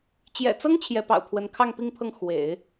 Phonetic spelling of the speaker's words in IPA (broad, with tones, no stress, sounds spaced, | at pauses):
t͡ɕ j ɛ̰˨˩ t͡s ɤ˥ ŋ t͡ɕʰ j ɛ˧˥ p ɑ̰˨˩ ʊ̯ pʰ w ə˧˥ n kʰ ɑ˥˧ ŋ p i˥˧ ŋ pʰ ɤ˥˩ ŋ x w ḛ˨˩˦ ɪ̯